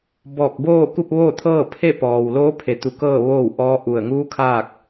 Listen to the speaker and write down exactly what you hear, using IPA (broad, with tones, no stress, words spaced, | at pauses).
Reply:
bɔː˧˩k̚boː˥˨ ku˥˨p̚ʋoː˥˨t̪ʰɤː˥˨ pʰe˥˨pɔː˩w loː˧˥pʰe˩t̪u˩˧ kɤː˥˨ ʋoː˥˨wʔɔː˧˥ʔu˧˩ə̯ ŋuː˧˥ kʰaː˥˨k̚